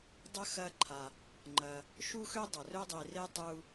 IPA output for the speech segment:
dˤ ə˥ x ɐ˦ ǃʰ a˨ | ŋ͡ǃ ɐ˨ | ʃ u˥ x ø˥ dˤ ə˩ r ø˥ dˤ i˨ r e˥ tˤ u˦

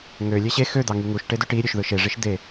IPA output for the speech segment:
ŋ ø lʲ e ɕ e x ø d̪ ɑ ŋ y ŋ u ʃ ʈ e d ø ʈ i ɾʲ ø ʃ ð ɯ ʃ e ʐ i ʃ d̪ e

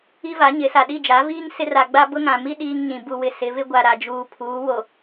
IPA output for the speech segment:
i˦ v a˨˦ ɲ ɪ˨˦ s a˨ ɗ i˦˨ d͡ʒ a˨˦ v iː˦ ŋ s ɪ˦ r a˨ ɡ͡b a˦ b ʊ˦ ŋ ã˨ m i˦ ɗ iː˦ ŋ ɲ ĩ˨ b u˨ w ɪ˨ s ɪ˨˦ v ɪ˦ ɡʷ a˨ ɾ a˨ d͡ʒ uː˨ pʰ uː˨˦ w o˨

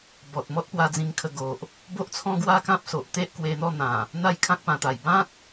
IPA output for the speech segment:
b ɔ˨ t̚ m ɔ˦ t̚ p w a˧ d͡z ĩ˧ ŋ kʰ ə˧ ɡ o˨ ʔ | b o˦ ʔ t͡sʰ ɔ̃˦ ɡ w a˦ k ã˦ p̚ s o˨ ʔ t̪ e˦ ʔ k w e˧ n̪ ɔ˥˧ n̪ ã˨˩ | n̪ a˦ j kʰ ã˦ k̚ p ã˨˩ t̪ a˨˩ j b ã˦ t̚

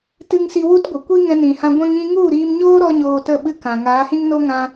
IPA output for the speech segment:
t ɨ˧ ŋ s i˧ w u˦ t ɡʷ ə˨ kʷ i˦ ŋ ɛ̃˧ n ĩ˨ h ã˧ ɡʷ ɛ̃˦ ŋ ĩ˦ ŋ u˦˨ ɾ iː˧ m ɲ oː˦ ɾ ɔ˦ ɲ oː˧ t ə˦˨ ɓ ɨ˦ k ã˨ ŋ aː˨˦ h ĩ˦ ŋ n o˦ ŋ ã˧

